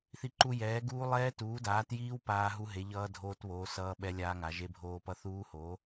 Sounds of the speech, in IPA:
θ i˦˥ ǃ u˦˥ j ɛː˨˥ ɡ uː˦˥ lˠ ɛː˦˥ t uː˨˥ d aː˨˥ t j iː˦˥ w p aː˦˥ ɦ u˦˥ ɦ e˨˥ ʎ ʌː˦˥ dʱ oː˦˥ t β oː˨˥ s ʌː˦˥ ɓ ɛ˦˥ lʲ aː˦˥ ŋ a˨˥ ʒ e˦˥ bʱ oː˦˥ p ʌ˦˥ θ uː˦˥ h oː˨˥

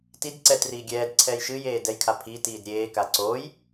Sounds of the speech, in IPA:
t i d ǀ ɛ t r iː ɡʲ ɛː d ǀʰ ɛː j ʃ ɨ j eː d ɛ j kʰ a pʰ i t iː d ɾʲ eː k a ǀ oː j

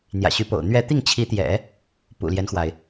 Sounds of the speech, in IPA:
n̪ j ä̰˨˩ ɕ y˧˥ p o̰˨˩ ʊ̯ n̪ ɥ ɛ˥˧ t̪ i˥˩ ŋ t͡ɕʰ i˧˥ t̪ j ɛ̰˨˩˦ | p ṵ˨˩ l j ɛ˦ n x w a˩ ɪ̯

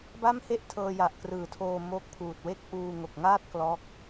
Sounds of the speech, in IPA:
b a˥˩ m h e˥˩ ʔ tʰ ɤː˧ j a˨˩ ʔ k r ɯː˩˦ tʰ oː˧ m oː˦˥ k̚ pʰ uː˨˩ t̚ w e˥˩ k̚ ʔ uː˧ ŋ o˨˩ k̚ ŋ aː˥˩ t̚ k l ɔː˦˥ k̚

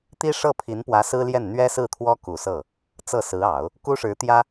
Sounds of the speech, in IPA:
t̪ i˥ ʂ ɤ˥˩ pʰ i˧˥ n p w ä˧˥ s ɹ̩˥ l j ɛ˥˩ n n̪ ɥ ɛ˥ s ɹ̩˥˩ t̪ʰ w ɔ˥ k u˨˩ s ɤ˥˩ | t͡s ɤ˥˩ s ɹ̩˧˥ ɑ˨˩˦ ʊ̯ | k u˥ ʂ ɻ̩˧˥ t̪ j ä˥

